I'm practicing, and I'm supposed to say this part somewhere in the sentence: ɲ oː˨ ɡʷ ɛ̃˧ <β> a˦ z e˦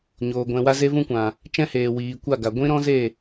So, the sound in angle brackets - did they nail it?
no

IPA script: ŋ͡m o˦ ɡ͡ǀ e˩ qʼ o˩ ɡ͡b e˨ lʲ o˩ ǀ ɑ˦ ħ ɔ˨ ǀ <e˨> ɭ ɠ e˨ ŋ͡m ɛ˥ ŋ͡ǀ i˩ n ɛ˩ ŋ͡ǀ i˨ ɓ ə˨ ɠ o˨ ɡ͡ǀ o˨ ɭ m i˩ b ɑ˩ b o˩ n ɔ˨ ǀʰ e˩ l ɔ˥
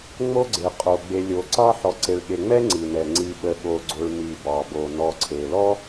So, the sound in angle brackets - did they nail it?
yes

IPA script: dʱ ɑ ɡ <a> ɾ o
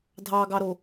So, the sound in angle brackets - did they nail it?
no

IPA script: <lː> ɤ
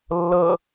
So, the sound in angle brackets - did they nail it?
yes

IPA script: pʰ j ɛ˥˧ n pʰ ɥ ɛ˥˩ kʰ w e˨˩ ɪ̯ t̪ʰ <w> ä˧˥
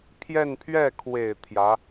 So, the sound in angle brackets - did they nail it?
no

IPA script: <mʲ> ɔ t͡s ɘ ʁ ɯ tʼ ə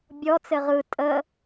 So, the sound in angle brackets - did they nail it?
no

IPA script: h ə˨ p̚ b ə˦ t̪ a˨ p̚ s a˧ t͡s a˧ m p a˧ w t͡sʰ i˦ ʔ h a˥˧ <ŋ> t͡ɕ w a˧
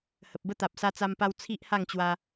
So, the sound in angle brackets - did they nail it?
yes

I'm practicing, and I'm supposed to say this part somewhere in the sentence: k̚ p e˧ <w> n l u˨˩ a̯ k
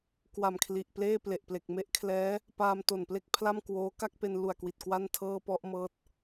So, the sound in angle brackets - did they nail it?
no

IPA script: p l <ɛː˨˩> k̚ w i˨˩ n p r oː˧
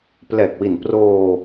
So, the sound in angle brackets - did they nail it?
yes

